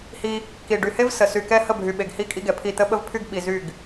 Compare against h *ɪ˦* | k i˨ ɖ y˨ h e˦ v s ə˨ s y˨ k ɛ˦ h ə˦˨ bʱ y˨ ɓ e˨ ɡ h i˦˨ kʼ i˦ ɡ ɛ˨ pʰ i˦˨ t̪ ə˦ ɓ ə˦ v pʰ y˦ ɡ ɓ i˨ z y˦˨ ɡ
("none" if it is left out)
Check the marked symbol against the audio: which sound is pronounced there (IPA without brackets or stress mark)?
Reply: i˦